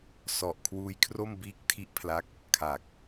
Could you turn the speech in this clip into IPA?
s ɔ˨˩ ʔ kʰ w uː˧ j kʰ r o˥˩ m b iː˦˥ k̚ tʰ i˦˥ ʔ pʰ l a˦˥ k̚ | kʰ a˨˩ k̚

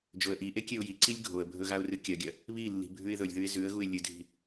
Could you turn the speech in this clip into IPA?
d͡ʒ o ə̯ ʔ i ʔ e kʲ e ʊ̯ j i ǀ i lʲ ɡʱ o ə̯ bʱ ɵ ɣ a ʊ̯ r ɨ kʲ ɐ ɡʲ ɐ | β i lː i̤ bʱ ʉ ɪ̯ ð ɵ lʲ ð ʉ ɪ̯ z ʉ ə̯ ɣ u ɪ̯ lʲ ɨ dʱ i̤

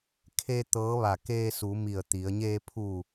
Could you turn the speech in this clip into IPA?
kʰ e˧ t̪ ɤː˧˥ ʋ a˧˩ k eː˧ s u˩˧ m i˧˩ ə̯ t̪ i˩˧ ə̯ ɲ eː˧ pʰ u˧˩

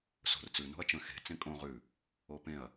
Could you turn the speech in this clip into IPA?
s o̤ r t͡s ʉ n o̤ ɐ̯ t͡ʃ ə̃ x e̤ t͡s ẽ kʼ õ ʁ ʉ | o p ẽ ɐ̯

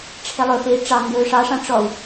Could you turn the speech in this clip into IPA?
ʈ͡ʂʰ e lˠ ɵ f e i̯ ʈ͡ʂ ɑ ŋ ɡ ɵː ʂ ɑ ʂ ɑ̃ ʈ͡ʂ ɔ u̯

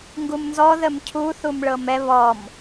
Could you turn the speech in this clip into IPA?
ŋ ɡ u m n z ɔ ð ə m cʰ u θ u m ɭ ɤ m ɛ β ɔ m

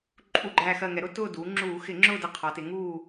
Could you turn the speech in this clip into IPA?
ǃʼ u˧˩ ɡ͡ǃ æ˧˩ x ɜ˧˩ ŋ ɛ˩˧ ɾ ʊ˥˨ t ʊː˥˨ d uː˩˧ ŋ͡ǁ uː˧˩˧ x ɪ˧˩˧ ŋ͡ǁ ʊː˥˨ d ɜ˧˩ qʰ ɒ˩˧ t ɪ˩˧ ŋ uː˥˨

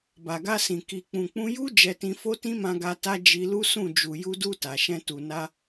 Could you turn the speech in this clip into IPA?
b a˨ ɡ a˧ s ĩ˨ k i˨ k͡p ũ˨ k͡p ũ˧ j u˦ d͡ʒ ɛ˧ t ĩ˧ f o˦ t ĩ˦ m ã˧ ɡ a˧ t a˧ d͡ʒ i˧ l u˦ s ũ˦˨ d͡ʒ u˨ j u˧ d u˧ t a˨ ʃ ɛ̃˧ t u˨ n a˧

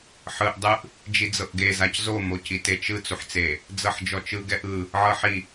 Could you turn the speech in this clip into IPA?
ħ ɯ ʔ dˤ ɯ ʔ | d͡ʒ i d͡z ɤ ʔ ɡ e z a c z o m o c i t e t͡ʃ ɯ t͡s u ħ t͡s e | d͡z ɤ ħ d͡ʒ ɔ t͡ʃ ɯ ɡ ɛ ʔ ɯ | ʕ ɤ ħ i

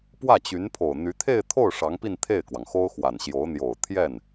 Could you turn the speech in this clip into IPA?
p w ä˥˩ t͡ɕ y˧˥ n pʰ o˨˩ ʊ̯ n̪ y˧˥ t̪ʰ e˥˧ ɪ̯ t̪ʰ o˥˩ ʊ̯ ʂ ɑ˧˥ ŋ p i˥˧ n t̪ʰ e˥˩ ɪ̯ k w ɑ˩ ŋ x o˥ ʊ̯ x w a˨˩ n ɕ j o˧˥ ʊ̯ n̪ j o˨˩ ʊ̯ t̪ʰ j ɛ˥˩ n

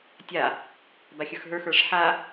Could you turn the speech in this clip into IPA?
tʲ a | b a xʲ ə˞ x ɦ ə˞ x ə˞ ʂ ħ a

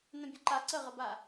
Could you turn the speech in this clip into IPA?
n ə̃ bʲ ə ǃ a ǀ ə ʁ ə b a

